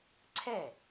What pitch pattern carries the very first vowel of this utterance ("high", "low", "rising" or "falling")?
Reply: falling